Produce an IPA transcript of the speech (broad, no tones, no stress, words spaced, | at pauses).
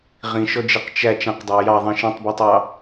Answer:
ʁĩʃɔd͡ʒeq t͡ʃæ t͡ʃãqdˤæ jɑðˤĩ ʃẽtˤbɔtˤɑ